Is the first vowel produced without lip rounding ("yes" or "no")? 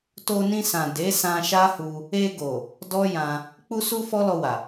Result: no